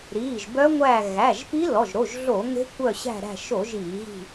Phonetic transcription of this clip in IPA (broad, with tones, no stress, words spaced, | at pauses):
ɾiː˩˧˩ʒbœ˦˥ŋʷæː˦˨ ɣæ˩˧˩ʒpi˦˥lɔ˩˧˩ʒ ɾo˩˧˩ʒɮo˧˩˧ ŋe̤˦˥kʷœ˦˨ɕæ̤˦˨ɾæ̤˦˨ ʃo˧˩˧ʒ iː˧˩˧ɣi̤˦˨